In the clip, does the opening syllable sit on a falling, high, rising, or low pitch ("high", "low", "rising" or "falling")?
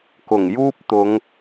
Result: low